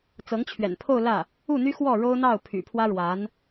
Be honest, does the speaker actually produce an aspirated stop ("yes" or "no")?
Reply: yes